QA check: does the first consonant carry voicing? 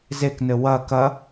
yes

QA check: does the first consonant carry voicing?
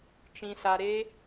no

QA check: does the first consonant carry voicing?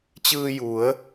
no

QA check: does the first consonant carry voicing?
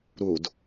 yes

